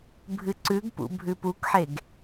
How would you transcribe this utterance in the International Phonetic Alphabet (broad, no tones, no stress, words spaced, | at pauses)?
bʱɨǀʉɡpṵ bʱʉpukħeɡ